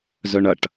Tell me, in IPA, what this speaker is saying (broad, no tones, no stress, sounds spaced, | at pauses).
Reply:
z œ ɳ ɐ ʈ